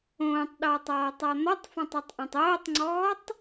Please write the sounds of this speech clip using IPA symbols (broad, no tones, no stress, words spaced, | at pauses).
õːtˤɗɔːtˤɔːtˤɔ n̪ɔtˤfãtˤatˤʔõtˤ oːtˤŋ͡ǀɔːtˤ